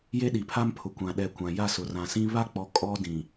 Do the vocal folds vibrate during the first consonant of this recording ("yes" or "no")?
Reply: yes